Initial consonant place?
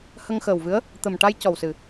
glottal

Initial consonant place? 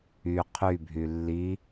uvular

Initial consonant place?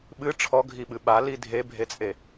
labial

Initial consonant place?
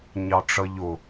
palatal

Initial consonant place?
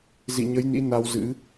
alveolar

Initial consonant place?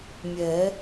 labial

